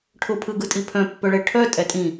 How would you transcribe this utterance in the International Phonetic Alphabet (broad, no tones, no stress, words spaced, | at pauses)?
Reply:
ʈʰʊ pʰɯɡɯtʼipʰœ̃ pːœɭɛʈʰœ tʼɛtʼĩ